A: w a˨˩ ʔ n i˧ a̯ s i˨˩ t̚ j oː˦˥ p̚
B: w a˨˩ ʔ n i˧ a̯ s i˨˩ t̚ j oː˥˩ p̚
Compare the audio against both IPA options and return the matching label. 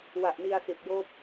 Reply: A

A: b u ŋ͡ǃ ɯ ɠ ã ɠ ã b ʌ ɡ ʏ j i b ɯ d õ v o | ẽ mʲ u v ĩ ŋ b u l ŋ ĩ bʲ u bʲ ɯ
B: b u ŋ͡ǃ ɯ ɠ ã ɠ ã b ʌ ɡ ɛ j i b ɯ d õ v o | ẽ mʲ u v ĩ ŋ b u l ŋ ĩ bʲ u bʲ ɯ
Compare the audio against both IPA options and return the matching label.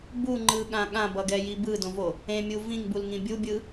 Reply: B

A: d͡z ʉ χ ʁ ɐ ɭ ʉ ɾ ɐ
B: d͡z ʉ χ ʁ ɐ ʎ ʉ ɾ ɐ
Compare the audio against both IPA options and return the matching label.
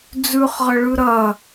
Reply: A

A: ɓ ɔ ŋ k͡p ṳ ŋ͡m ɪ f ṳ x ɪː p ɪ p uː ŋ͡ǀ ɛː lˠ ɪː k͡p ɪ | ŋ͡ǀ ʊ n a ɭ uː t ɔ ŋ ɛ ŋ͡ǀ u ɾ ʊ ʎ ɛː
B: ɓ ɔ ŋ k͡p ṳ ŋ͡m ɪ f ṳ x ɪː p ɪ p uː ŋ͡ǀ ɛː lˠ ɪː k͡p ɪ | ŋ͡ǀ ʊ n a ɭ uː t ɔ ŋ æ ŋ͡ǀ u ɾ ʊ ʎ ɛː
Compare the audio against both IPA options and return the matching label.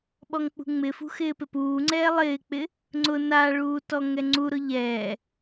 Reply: A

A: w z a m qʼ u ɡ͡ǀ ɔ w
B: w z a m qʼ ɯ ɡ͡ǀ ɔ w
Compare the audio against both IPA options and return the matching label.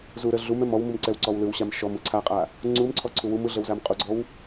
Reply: A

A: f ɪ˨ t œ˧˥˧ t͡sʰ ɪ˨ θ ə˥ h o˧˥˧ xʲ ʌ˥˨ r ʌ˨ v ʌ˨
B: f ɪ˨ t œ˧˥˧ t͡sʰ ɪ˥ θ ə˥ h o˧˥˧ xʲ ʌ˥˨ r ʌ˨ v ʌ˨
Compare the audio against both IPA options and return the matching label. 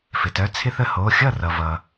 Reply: B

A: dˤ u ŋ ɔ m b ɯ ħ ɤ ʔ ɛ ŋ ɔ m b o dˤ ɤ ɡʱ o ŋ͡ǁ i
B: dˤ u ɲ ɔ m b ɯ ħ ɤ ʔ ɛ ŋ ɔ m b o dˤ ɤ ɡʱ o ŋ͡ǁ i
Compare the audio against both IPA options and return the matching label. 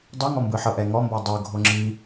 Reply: A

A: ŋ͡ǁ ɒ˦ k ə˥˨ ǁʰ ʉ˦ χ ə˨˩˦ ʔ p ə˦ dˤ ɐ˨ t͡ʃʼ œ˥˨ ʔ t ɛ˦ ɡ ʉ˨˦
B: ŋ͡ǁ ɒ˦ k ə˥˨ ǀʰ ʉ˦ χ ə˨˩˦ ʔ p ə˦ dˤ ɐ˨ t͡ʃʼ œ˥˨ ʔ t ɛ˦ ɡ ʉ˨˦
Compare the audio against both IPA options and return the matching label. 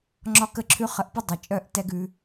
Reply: A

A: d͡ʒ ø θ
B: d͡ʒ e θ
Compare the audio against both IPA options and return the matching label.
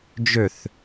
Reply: A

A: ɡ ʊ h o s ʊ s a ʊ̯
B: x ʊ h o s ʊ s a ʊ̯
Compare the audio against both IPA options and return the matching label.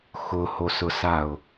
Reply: B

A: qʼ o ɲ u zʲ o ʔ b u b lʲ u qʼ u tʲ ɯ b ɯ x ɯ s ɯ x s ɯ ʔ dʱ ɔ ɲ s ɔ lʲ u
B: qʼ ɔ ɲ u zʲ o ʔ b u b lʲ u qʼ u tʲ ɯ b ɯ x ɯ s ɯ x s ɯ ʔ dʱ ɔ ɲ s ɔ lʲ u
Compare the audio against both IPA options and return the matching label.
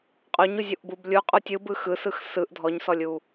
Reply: A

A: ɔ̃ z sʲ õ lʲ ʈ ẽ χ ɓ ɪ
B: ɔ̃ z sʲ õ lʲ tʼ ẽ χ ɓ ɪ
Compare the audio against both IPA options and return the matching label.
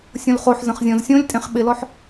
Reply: B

